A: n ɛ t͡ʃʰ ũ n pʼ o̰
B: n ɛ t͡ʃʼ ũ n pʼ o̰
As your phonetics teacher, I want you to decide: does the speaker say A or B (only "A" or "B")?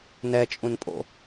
B